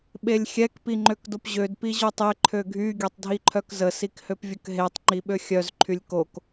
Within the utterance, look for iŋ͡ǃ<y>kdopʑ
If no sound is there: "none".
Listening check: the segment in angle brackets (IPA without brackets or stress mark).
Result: ø